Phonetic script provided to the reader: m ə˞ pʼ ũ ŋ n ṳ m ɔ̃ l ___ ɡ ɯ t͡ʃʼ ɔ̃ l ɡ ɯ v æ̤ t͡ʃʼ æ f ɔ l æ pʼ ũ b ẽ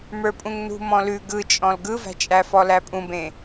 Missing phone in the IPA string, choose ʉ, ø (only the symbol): ʉ